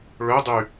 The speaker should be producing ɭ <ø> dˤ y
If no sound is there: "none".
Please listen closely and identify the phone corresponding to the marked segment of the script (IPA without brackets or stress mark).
ø